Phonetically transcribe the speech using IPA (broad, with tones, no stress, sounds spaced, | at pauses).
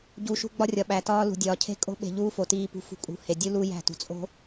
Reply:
ɟ uː˨ ʃ ṳ˦ ɡ͡b ɒ˦ rʲ ɒ˨ ɓ æ˨ t ɒː˦ l ṳ˨ dʲ ɒː˨ cʰ e̤˦ kʼ o̤˦ ɓ e̤˨ ʎ uː˦ f o˨ t iː˨ p ṳ˨ f ṳ˨ kʼ ṳ˨ h e˨ dʲ u˦ l uː˦ j æ̤˦˨ t ṳ˨ t͡sʼ o̤˦